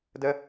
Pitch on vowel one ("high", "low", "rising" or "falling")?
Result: high